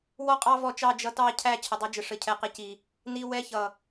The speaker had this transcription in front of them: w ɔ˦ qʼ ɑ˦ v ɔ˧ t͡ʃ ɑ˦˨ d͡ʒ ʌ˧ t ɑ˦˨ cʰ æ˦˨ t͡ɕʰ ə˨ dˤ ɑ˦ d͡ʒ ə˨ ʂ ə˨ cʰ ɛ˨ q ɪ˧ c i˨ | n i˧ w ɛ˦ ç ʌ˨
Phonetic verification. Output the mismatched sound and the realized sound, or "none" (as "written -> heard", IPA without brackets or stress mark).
none